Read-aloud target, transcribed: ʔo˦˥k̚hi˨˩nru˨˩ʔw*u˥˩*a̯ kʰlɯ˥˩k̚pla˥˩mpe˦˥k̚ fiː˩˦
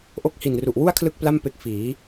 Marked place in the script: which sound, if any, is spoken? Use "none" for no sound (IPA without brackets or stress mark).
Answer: u˥˩